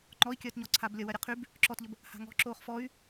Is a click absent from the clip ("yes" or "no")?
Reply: no